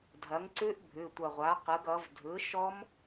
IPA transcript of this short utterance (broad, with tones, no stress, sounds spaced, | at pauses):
dʱ ɐ˩˥ ŋ ǀ ʉ˦˥ ʔ bʱ ʉ˩˧˩ tʷ ɐ˧˩ ʁʷ a˩˥ q ɯ˩˥ ɡ ʌ˩˥ v dʱ ɯ˩˥ ʃ ɔ˦˥ m